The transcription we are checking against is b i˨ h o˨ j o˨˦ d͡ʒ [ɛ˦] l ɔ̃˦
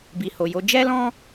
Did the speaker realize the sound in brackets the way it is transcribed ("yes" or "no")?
yes